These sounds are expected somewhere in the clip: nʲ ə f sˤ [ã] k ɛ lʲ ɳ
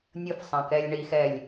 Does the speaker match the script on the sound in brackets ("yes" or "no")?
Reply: yes